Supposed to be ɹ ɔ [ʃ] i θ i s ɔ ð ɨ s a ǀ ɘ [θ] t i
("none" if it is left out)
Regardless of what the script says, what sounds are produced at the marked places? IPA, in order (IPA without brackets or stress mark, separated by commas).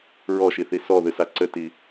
ʃ, none